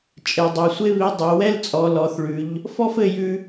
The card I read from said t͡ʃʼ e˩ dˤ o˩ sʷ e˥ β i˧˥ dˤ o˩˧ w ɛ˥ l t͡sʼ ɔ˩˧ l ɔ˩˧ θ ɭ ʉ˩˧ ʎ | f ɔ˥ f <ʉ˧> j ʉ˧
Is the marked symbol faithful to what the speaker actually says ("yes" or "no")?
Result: no